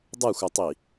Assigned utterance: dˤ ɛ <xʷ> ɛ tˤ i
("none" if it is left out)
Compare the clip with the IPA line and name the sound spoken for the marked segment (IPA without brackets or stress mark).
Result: xʷ